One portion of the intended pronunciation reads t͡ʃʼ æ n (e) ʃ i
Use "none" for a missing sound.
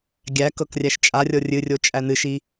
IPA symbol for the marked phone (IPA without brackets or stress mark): ɨ